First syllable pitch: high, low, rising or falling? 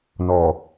low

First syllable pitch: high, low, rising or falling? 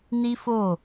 high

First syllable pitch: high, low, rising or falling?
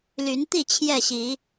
rising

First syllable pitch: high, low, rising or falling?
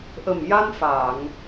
low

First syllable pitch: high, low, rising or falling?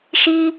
high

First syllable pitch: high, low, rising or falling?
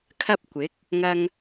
high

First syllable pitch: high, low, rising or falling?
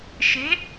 rising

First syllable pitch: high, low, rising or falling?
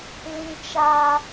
high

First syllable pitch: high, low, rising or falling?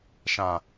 low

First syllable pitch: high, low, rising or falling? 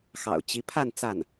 low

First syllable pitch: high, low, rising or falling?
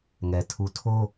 low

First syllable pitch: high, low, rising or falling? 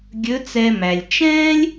rising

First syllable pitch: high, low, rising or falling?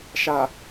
low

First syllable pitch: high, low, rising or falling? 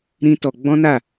high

